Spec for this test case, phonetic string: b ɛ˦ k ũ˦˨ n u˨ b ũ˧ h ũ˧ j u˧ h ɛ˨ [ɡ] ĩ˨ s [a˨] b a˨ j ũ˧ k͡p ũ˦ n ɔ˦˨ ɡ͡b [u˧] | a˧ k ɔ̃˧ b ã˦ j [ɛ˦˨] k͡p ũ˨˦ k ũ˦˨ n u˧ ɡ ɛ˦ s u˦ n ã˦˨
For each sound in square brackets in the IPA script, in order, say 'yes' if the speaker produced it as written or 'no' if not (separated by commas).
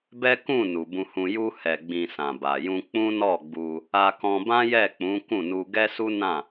no, no, yes, yes